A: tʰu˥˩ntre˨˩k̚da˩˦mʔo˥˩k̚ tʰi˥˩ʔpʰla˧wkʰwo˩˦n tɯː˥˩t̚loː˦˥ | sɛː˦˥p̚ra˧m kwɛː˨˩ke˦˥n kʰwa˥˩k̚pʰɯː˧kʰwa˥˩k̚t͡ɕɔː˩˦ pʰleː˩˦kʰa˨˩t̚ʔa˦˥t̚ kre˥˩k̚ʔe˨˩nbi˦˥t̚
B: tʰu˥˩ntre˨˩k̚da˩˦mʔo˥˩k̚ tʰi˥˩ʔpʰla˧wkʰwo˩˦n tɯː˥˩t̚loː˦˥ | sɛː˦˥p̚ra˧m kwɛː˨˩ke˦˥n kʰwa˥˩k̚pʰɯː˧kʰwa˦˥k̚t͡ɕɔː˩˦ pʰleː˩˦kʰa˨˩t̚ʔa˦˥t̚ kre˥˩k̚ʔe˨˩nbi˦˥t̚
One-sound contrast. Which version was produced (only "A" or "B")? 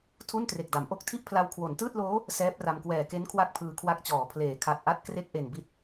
B